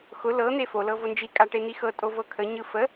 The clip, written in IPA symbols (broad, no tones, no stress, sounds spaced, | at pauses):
x ʊ l ɤ n̪ e f o l ɤ v o n d͡ʒ i kʼ a ʈ e n̪ i x ɤ tʼ o v ɤ kʰ ə ɲ ɯ f ə